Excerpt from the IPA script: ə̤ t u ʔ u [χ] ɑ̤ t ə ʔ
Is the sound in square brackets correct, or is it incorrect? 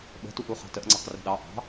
correct